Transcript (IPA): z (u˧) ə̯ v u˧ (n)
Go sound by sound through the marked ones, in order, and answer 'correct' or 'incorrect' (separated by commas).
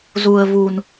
correct, correct